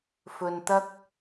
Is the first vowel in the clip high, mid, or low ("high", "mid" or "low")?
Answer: mid